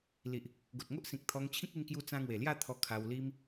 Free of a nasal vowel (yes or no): no